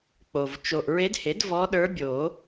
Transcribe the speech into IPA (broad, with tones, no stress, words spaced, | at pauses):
k͡po˨v t͡ʃo˨ʔɹe˧˥dhe˩˥d vɔ˧˥ɗə˞˧˥bʲo˨˩˦